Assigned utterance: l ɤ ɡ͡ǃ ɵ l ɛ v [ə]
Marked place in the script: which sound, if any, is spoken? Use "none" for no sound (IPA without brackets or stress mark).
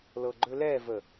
ə